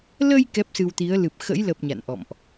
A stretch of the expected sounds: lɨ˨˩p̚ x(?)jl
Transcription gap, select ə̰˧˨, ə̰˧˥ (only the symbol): ə̰˧˥